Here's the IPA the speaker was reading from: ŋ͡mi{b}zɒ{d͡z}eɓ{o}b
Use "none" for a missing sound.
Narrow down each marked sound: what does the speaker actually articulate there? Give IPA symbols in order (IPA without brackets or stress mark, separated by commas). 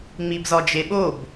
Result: b, d͡ʒ, o